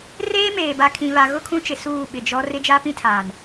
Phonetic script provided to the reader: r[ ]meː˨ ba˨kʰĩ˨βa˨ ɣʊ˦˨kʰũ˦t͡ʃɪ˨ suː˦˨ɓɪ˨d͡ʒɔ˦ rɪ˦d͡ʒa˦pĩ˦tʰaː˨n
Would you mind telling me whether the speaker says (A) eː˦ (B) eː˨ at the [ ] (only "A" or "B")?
A